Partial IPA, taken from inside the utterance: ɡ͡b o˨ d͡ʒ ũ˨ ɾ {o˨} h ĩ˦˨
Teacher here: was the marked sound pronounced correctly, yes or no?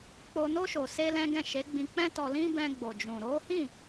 no